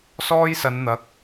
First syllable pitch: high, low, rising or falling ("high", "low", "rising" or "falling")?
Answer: high